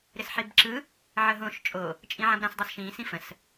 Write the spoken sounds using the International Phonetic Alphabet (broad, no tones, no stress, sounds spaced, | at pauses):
ɾ ɪ s ħ i b ǁ ɯ | ʕ ə ɦ õ ʃ t͡ʃʼ o | t͡ʃʼ ĩ ʕ ã b ɾ ã s dˤ o s ʃ ĩː s ĩ f ə̃ s